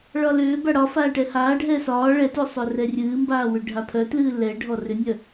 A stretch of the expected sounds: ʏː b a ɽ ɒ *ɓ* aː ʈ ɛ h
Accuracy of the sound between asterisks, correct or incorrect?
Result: incorrect